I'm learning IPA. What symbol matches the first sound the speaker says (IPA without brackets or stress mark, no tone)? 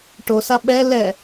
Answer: ʈ